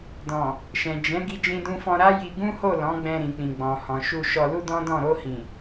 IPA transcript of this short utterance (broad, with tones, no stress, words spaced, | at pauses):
dɔ̃˨ | ʃɛ̃˨ d͡ʒɛ̃˨˦ ɡi˧d͡ʒĩ˧dũ˧fɔ̃˧ ɾa˦ ji˧ ɡũ˦ho˦˨ lɔ̃˨˦ɡ͡bɛ̃˧ ɾĩ˨k͡pĩ˨ ɡ͡bɔ̃˨hɔ̃˨ʃu˧ ʃɔ˧lu˦dɔ̃˦dɔ̃˦˨ ɾo˧hĩ˨